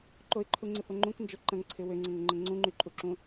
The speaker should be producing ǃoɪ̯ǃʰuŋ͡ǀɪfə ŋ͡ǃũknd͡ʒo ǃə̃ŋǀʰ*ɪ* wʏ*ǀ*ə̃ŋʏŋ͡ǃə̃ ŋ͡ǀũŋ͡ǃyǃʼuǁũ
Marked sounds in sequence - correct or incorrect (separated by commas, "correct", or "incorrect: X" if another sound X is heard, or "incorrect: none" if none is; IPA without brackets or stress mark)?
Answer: correct, incorrect: ŋ͡ǀ